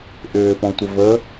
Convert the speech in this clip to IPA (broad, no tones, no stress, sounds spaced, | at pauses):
ʔ ʏː p ɔ̃ tʷ ə v ə